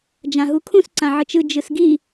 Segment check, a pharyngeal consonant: present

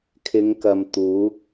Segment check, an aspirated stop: present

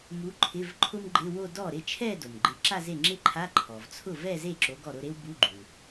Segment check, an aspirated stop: present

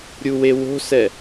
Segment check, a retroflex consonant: absent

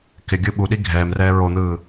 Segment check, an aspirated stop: absent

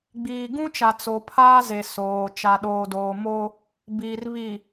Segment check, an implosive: present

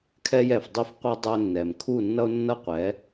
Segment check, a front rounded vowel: absent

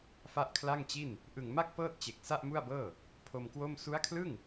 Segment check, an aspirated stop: present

